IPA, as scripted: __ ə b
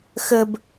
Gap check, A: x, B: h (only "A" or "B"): A